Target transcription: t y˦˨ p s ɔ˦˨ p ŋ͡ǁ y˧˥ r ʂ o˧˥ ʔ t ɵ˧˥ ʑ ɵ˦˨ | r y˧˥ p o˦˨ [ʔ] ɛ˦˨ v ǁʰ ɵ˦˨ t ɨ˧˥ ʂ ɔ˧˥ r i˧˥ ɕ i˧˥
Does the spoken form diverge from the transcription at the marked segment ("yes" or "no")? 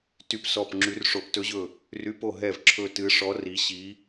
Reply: yes